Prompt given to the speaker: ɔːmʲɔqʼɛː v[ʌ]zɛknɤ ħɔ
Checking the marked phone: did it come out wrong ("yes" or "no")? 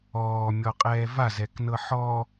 yes